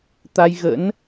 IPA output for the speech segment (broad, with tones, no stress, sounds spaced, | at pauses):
t̪ a˧ j ɣ ə̰˧˥ n